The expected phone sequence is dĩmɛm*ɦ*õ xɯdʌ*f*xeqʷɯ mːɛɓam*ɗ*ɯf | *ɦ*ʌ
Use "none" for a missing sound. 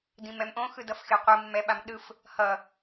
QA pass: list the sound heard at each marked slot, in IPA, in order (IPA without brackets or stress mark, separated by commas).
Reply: ʔ, f, ɗ, h